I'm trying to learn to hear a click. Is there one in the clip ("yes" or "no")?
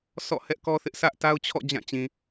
no